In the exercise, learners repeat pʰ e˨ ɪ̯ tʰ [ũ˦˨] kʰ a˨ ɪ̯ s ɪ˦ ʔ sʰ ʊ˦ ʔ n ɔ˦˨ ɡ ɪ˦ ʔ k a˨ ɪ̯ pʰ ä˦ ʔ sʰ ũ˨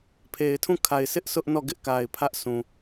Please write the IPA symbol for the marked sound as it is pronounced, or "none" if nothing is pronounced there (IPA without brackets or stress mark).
ũ˦˨